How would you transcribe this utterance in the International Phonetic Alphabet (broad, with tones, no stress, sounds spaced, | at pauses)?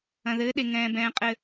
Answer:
ɐ̃˨ ð ɘː˨˦ ɗ e˨ ŋ ɛ̃ː˦ b ɛ̃ː˦ qʼ ɘ˦